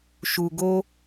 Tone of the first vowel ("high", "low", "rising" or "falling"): low